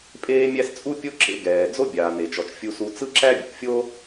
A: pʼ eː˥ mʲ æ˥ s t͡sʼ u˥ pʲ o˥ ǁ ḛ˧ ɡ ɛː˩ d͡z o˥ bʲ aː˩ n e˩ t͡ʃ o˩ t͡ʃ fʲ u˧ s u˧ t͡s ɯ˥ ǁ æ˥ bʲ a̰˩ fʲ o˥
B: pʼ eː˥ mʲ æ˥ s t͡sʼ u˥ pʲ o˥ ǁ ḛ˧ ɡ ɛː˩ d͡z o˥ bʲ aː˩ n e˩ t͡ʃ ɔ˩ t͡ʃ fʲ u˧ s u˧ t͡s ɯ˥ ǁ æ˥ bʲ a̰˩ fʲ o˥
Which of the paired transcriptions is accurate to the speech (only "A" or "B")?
B